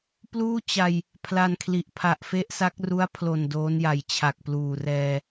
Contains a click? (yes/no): no